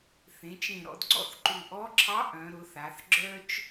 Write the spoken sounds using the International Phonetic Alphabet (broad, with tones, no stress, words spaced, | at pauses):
θẽ˩˧t͡ʃẽ˨˩ɾɔ̰˩˧dɡ͡ǀɔ̰˥˩θ ǃu˨˩ʔɔ˧˥ǁʰɑ˧˥ ʔœ̃˩˧ ɾʊ˩˧θa˩˧θ ɡ͡ǁœ˥t͡ʃ